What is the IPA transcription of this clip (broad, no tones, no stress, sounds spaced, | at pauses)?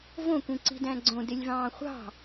v õ kʷ ĩ ǀ i̤ d æ̃ ɡ͡ǀ õ d e lʲ v ɑ̃ː χʷ ɑ̤